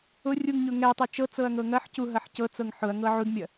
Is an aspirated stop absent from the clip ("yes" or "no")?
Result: yes